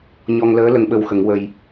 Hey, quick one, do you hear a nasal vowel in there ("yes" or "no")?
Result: no